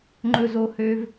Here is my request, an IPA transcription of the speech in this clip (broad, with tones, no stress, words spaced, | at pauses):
ŋ͡ǃɵ˦zo˦hø˦v